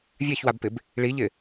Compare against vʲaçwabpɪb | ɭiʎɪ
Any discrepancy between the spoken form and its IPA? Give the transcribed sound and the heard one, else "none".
none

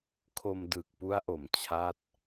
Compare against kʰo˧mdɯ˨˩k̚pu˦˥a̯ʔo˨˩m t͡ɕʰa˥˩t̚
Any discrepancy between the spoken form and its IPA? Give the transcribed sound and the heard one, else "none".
none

